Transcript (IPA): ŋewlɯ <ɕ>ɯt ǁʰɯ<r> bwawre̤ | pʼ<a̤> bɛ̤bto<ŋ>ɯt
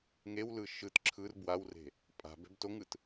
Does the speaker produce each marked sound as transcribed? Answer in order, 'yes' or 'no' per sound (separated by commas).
no, yes, yes, yes